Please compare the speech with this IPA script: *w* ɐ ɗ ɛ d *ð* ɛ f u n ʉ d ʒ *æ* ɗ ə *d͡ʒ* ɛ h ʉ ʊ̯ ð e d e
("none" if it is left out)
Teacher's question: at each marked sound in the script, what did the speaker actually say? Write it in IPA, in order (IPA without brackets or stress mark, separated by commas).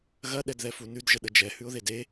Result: ɣ, ð, ə, d͡ʒ